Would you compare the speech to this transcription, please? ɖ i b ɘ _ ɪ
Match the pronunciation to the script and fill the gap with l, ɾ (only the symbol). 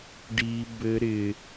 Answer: ɾ